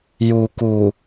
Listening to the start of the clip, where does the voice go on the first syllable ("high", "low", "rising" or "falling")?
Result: low